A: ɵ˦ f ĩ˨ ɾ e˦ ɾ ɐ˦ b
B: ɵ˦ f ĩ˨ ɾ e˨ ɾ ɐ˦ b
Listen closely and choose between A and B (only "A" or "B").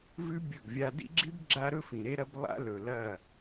A